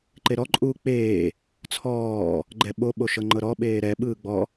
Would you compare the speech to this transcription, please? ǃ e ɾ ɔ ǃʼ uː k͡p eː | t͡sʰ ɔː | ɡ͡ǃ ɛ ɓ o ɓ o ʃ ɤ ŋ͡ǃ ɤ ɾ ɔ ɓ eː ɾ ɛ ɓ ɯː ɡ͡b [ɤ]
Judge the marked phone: incorrect: ɔ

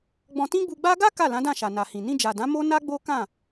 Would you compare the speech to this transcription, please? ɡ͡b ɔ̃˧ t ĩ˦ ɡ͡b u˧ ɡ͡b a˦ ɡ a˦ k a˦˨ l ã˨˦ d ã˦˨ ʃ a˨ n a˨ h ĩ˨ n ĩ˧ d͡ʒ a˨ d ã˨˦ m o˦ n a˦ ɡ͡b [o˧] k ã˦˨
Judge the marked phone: incorrect: o˦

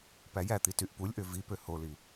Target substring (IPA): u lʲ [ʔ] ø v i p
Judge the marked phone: correct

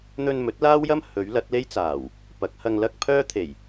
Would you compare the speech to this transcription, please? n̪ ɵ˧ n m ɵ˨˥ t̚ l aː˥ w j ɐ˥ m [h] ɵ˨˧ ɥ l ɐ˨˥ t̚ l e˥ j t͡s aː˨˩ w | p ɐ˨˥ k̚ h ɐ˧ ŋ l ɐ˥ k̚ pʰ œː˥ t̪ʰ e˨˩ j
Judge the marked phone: correct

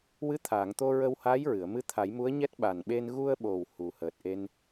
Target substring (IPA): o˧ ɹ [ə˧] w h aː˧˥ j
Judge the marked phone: correct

